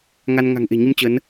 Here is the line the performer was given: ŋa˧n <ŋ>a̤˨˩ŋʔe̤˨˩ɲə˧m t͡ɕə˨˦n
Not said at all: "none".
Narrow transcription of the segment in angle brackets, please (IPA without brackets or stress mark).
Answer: ŋ